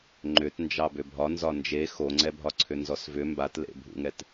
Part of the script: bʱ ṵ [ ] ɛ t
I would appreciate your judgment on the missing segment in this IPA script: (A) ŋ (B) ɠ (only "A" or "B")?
A